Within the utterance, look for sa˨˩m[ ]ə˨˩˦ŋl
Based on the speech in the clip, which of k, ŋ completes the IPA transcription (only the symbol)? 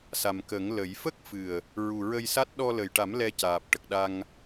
k